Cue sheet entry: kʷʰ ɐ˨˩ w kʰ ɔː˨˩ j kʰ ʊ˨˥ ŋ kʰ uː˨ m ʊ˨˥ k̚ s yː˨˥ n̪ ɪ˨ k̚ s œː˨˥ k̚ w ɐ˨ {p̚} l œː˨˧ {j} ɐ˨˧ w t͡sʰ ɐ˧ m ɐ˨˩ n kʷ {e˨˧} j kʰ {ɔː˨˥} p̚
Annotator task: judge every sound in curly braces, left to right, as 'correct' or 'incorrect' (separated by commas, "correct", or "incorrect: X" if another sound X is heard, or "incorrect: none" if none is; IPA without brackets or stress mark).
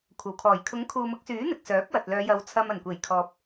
incorrect: t̚, correct, incorrect: e˨˩, incorrect: ɔː˨